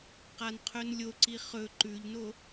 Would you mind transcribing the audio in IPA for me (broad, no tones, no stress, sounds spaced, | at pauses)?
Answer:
q a n qʰ ɵ n lʲ o ǀ i χ ɵ ǃ ʉ ʎ n o